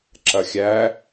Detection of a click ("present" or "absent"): present